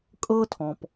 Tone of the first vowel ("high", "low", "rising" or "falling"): high